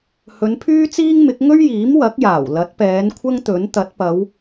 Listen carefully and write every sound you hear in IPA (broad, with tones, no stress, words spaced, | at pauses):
hɵ˨˧npʰyː˥t͡siː˥ŋmɪ˨˥k̚ ŋɵ˥ɥjiː˨˥m wɐ˨˥k̚jaː˨˩wlɐ˨˥t̚pɛː˨˧n kʷʰɐ˥ŋt̪ɵ˨˥n t̪ɐ˨˥t̚pɐ˨˧w